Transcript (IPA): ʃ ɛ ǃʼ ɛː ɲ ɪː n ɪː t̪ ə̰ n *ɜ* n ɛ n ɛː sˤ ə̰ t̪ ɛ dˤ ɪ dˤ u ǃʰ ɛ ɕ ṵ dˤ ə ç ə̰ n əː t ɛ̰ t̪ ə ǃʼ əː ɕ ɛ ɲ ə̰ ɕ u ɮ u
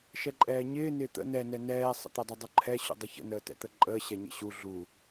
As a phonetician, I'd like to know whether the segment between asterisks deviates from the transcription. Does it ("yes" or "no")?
yes